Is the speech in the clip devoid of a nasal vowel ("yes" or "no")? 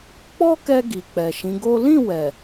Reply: no